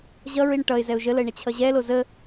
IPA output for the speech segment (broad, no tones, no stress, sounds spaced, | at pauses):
ʑ ʌ ɹ i ɳ ʈ ʌ ɪ̯ z ɛ ʊ̯ ʒ ə l ə ɪ̯ ɳ ə t͡ɕʰ ʌ ʑ ɛ l o z ə